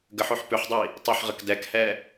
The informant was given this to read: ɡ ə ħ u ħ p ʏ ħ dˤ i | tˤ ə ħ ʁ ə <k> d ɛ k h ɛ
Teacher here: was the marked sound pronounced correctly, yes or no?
yes